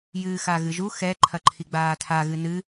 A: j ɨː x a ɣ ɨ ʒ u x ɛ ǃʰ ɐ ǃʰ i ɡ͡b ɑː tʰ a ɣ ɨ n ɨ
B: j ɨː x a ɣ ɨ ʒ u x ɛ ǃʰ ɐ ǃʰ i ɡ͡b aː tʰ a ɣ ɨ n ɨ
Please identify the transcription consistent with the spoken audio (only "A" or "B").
B